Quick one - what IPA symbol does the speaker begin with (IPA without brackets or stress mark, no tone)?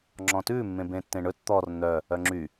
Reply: ŋ͡ǁ